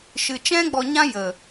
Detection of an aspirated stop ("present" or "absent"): absent